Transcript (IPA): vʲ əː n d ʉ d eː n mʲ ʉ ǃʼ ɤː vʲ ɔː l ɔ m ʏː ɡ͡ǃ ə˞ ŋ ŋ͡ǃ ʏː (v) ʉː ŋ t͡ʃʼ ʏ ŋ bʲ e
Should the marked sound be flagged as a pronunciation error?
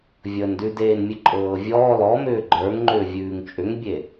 yes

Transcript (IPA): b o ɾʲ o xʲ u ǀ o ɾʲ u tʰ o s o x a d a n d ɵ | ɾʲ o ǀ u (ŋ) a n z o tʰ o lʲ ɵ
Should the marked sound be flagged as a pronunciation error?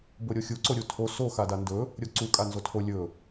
yes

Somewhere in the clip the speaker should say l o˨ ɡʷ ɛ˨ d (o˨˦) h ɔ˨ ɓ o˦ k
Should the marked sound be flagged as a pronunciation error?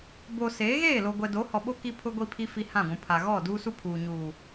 no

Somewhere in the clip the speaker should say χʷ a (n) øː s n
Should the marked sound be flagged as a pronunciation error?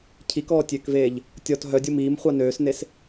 no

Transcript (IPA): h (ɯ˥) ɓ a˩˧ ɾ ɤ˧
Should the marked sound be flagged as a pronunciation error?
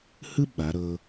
no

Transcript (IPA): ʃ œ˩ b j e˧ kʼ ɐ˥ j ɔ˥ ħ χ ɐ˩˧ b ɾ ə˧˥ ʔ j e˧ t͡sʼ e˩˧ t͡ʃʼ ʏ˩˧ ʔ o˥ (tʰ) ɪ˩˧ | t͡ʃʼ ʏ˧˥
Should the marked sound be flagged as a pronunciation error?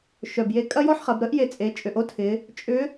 no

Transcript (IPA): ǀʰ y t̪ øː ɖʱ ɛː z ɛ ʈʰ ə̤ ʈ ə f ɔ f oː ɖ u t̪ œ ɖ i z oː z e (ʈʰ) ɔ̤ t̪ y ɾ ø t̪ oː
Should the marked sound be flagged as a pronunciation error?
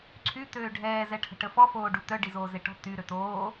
yes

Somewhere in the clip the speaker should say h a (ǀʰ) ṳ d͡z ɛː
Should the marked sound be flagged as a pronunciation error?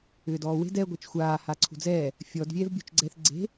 no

